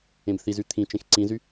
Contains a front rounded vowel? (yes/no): yes